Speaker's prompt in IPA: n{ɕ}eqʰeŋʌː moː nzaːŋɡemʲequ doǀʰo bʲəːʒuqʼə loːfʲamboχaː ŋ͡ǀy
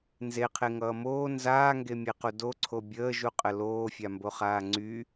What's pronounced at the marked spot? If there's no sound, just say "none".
z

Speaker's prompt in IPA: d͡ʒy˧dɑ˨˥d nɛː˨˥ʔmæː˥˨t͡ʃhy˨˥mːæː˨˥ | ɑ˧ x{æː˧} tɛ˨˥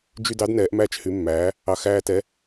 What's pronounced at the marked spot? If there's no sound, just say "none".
æː˧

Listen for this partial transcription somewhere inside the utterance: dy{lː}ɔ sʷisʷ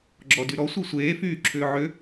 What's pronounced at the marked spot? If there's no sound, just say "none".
ɾ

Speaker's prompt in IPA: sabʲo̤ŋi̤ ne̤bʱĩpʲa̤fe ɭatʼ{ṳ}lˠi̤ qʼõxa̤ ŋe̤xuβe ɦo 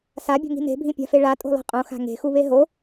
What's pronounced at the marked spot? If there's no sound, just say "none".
o̤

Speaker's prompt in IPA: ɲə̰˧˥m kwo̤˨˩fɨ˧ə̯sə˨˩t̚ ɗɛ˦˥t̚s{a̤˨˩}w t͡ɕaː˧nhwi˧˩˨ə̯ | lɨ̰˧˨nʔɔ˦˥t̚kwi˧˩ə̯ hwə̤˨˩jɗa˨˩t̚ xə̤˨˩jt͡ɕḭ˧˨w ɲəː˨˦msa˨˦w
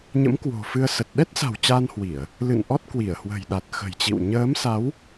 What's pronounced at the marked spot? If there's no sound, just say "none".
a̤˨˩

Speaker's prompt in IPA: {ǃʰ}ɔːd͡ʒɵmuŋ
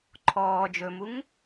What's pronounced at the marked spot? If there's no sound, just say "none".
ǃʰ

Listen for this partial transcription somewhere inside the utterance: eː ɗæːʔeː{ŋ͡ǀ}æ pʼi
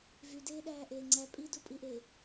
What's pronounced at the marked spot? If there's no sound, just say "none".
ŋ͡ǀ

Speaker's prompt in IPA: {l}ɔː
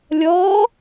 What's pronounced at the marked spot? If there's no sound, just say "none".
lʲ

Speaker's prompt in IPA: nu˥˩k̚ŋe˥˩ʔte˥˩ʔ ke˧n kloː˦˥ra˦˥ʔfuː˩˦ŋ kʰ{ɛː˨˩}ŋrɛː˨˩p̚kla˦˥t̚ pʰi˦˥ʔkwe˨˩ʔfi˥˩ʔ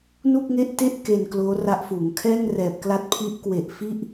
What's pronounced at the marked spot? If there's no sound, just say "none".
ɛː˥˩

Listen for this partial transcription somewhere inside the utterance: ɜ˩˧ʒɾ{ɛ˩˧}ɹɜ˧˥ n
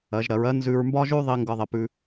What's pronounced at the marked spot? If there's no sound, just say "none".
ɜ˩˧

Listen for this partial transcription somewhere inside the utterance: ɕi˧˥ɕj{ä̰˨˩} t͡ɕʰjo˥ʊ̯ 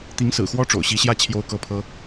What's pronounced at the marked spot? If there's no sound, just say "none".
ä˥˩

